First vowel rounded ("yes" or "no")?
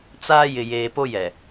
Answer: no